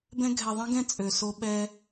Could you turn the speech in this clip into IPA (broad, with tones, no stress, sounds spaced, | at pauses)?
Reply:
b ɛ̃˦ ɡʱ ɛ˨ ðˤ ĩ˦ ɡ ɛ̃˦ t͡sʼ ø˨ s o˦ ɓ ɛ˦